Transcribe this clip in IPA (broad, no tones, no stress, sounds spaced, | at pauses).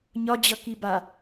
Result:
ɲ ɒ d͡ʑ ʌ k i b a